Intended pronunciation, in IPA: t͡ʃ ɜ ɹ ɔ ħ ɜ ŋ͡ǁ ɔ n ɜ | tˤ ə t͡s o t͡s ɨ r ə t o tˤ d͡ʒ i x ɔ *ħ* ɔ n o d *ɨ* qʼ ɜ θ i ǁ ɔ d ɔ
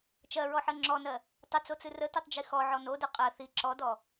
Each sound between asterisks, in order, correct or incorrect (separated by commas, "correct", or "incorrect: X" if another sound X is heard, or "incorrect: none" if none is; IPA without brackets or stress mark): incorrect: ʕ, correct